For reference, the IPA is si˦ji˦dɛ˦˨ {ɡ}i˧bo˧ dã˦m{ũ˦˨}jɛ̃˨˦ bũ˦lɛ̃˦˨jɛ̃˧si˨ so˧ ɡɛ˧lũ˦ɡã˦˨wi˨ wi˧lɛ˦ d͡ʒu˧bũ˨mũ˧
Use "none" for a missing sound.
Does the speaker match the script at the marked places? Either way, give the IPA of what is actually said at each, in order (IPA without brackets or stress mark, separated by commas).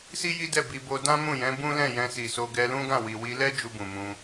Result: b, ũ˦˨